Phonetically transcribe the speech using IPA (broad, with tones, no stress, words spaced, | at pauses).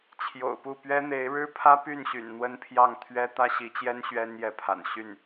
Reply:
t͡ɕʰjo̰˨˩ʊ̯pu˥˩ pɥɛ˥n̪e˧˥ɪ̯ ɻɻ̩˥pʰä˥ py˥˩nɕy̰˨˩n n̪wə˥npʰjɑ˥˩ŋ t̪ʰɥɛ˥ t̪ä˥ɕi˧˥t͡ɕjɛ˥n ɕɥɛ˥njɛ˧˥pʰa̰˨˩n ɕy˥˩n